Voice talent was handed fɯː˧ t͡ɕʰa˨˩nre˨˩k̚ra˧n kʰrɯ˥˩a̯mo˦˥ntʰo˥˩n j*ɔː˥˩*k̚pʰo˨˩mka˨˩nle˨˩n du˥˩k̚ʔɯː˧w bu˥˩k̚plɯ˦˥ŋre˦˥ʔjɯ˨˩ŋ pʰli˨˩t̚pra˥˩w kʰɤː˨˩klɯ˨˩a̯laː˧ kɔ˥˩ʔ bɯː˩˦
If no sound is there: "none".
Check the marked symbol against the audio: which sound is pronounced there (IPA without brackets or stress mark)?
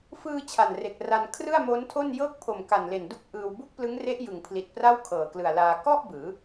ɤː˥˩